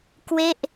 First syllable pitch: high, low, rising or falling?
falling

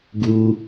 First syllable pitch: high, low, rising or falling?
high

